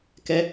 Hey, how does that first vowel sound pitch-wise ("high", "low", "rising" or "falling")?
high